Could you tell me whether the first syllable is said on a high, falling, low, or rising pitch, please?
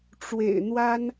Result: low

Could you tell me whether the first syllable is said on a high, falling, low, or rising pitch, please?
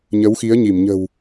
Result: rising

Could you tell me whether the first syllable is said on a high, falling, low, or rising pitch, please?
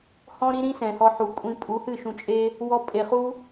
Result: high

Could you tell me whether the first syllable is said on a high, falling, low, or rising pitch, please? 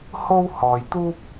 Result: high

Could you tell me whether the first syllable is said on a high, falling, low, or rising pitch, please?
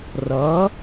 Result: rising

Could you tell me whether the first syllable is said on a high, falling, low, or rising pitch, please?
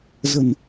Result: low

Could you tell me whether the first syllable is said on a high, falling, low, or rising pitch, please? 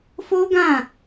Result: high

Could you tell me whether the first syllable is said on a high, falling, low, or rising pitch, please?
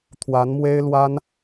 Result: rising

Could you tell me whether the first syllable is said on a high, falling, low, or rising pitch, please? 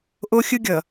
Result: high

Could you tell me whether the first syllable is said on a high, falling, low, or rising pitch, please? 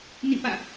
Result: falling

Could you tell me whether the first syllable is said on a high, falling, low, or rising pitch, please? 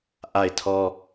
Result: falling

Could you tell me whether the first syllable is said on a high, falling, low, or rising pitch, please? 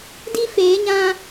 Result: high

